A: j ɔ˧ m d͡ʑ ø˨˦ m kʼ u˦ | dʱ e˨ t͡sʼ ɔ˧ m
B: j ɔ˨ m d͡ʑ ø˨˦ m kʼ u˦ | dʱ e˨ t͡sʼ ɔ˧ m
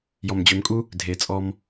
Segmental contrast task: B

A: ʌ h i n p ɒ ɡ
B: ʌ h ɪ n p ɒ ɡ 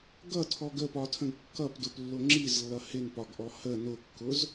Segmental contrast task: B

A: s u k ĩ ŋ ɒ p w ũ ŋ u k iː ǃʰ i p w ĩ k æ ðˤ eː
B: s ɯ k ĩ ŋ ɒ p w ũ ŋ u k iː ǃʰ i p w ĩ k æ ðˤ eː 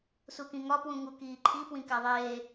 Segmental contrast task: A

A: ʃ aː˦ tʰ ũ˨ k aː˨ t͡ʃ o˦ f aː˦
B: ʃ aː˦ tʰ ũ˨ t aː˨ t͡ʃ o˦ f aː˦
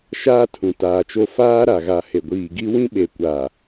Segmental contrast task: B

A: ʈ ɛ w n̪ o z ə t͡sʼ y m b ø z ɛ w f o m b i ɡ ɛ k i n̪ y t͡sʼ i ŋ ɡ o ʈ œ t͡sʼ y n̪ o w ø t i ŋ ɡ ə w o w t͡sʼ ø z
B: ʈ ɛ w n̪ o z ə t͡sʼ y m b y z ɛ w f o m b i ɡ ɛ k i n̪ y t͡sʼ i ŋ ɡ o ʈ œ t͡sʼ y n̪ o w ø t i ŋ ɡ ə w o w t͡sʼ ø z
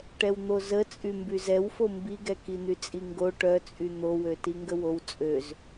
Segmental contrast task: B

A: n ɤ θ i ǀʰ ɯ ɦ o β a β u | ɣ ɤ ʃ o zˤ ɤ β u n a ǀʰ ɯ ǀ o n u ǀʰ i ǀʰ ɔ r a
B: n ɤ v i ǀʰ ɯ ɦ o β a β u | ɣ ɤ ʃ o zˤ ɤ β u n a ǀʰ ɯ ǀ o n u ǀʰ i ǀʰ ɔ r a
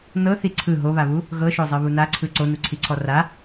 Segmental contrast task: A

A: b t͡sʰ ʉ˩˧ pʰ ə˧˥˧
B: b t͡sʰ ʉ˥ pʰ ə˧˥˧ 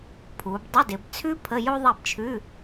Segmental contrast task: B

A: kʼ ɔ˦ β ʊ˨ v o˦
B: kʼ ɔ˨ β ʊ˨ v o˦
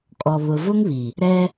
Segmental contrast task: B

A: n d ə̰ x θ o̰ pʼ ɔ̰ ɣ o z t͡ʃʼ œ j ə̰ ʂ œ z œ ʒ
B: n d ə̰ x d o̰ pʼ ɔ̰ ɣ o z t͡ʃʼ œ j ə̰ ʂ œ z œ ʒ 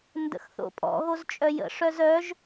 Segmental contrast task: A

